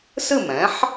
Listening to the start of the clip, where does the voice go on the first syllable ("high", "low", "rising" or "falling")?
falling